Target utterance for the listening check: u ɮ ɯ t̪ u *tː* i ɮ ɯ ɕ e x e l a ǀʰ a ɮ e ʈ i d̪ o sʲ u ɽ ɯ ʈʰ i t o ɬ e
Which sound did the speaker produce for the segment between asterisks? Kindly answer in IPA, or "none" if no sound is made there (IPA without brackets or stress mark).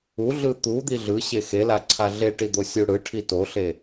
d̪